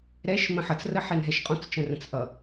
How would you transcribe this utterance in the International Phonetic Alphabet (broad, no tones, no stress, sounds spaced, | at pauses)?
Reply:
ɾ ɛ ʃ m ə̃ ħ ʌ t͡s r ə ħ ɛ n ɦ ɛ ʃ qʼ ɔ̃ t͡s t͡ʃ ə̃ r ə̃ t͡s ʔ ʌ